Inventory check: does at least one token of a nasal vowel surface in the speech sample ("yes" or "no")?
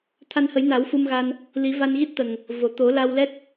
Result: no